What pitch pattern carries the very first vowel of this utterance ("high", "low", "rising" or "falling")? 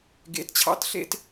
rising